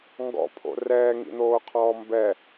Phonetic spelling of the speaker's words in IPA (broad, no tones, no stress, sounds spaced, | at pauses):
ŋ ɡ ɔ̰ pʰ o̰ r ɛː ŋ ḭ n̪ oː qʰ ɔː m b ɛ